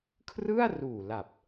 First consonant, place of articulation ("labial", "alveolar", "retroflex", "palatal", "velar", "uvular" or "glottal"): velar